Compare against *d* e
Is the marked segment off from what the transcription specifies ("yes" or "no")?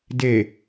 no